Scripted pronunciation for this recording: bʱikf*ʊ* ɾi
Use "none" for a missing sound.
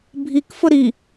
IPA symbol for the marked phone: ʊ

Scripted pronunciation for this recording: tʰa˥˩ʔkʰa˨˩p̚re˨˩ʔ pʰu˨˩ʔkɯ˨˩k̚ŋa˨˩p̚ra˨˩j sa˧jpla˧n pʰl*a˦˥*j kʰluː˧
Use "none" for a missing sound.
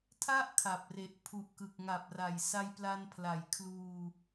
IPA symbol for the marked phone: a˨˩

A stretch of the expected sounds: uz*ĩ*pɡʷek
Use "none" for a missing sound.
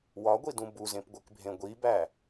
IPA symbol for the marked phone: ẽ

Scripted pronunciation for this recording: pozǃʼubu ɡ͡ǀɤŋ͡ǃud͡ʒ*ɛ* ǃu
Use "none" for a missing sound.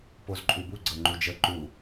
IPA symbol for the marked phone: ə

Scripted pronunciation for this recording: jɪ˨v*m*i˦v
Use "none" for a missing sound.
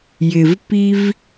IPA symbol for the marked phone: p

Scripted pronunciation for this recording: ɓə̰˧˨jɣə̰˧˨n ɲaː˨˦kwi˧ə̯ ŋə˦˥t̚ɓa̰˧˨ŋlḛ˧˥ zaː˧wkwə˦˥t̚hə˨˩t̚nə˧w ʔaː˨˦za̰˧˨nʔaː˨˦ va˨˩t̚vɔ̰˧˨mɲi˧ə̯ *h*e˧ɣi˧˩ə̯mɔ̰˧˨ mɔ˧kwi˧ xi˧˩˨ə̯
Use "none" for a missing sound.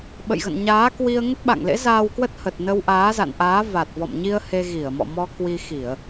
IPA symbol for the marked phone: h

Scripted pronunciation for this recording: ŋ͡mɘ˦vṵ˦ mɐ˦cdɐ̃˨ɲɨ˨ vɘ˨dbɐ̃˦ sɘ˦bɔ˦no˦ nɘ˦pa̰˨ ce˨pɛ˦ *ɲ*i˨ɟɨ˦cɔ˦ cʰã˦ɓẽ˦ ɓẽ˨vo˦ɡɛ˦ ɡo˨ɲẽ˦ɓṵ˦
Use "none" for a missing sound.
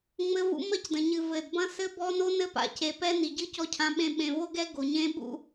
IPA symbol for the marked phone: n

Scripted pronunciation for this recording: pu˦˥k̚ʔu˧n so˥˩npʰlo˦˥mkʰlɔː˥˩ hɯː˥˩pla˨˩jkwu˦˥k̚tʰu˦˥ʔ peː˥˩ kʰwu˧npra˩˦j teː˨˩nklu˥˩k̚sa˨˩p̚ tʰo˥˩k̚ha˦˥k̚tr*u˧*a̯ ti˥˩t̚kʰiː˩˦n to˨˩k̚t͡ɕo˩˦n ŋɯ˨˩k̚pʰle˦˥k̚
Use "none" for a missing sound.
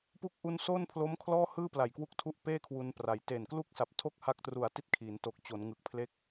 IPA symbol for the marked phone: u˨˩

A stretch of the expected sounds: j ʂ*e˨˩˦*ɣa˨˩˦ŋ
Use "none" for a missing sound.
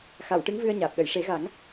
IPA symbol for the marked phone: e˨˩˦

